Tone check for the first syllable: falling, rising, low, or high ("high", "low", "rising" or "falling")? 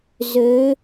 rising